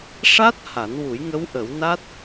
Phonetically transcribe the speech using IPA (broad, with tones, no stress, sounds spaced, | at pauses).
ʂ a˦˥ t̚ h a˨˩˦ n w u˨˩˦ j ŋ ə˧˥ w ʔ ə˨˩˦ w n a˦˥ t̚